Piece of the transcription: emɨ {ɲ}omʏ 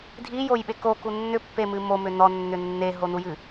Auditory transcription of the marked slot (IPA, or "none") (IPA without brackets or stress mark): m